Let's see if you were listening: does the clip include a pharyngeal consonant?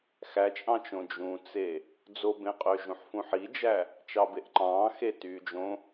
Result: yes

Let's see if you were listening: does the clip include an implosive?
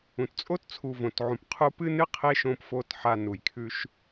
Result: no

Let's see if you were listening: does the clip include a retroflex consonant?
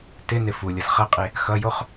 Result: no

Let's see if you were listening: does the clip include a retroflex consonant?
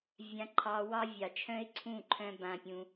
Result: no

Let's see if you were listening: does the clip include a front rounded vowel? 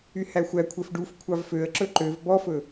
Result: yes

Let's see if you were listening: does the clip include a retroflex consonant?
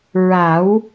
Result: no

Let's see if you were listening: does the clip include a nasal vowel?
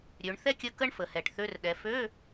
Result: no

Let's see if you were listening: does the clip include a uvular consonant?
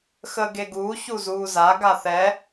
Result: no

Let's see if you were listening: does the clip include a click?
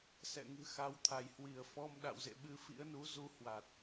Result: no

